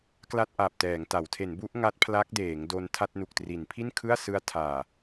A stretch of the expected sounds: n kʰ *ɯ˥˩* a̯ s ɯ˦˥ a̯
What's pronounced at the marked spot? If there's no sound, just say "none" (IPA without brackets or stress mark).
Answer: ɯ˥˩